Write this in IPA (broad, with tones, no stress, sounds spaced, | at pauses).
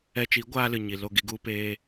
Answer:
ɛ˧ t͡ʃ i˨˦ ɡʷ aː˦ l ɨ˨ ɲ i˨ l o˦˨ ɡ i˧ ɡ u˦ p eː˦